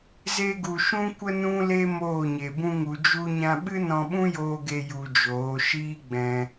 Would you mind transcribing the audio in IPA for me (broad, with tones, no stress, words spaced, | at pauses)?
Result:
ze˧ɡu˨ ʃũ˦kʷə˦ nũ˦le˦ moː˦˨ɲe˨bũ˦ŋu˧ d͡ʒu˧ɲã˧ɓɨ˦ nɔ̃˧ɓũ˦joː˧ɡe˧ ju˧d͡ʒoː˨˦ ʃiː˦ɡ͡bɛ̃˧